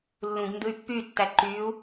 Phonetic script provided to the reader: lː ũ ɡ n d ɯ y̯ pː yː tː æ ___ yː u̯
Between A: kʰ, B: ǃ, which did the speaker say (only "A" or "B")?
B